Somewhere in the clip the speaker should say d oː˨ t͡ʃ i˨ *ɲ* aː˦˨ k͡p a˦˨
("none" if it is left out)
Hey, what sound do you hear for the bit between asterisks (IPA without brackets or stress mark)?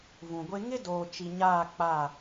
ɲ